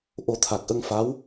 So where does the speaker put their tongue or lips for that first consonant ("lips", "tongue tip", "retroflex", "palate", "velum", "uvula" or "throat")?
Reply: throat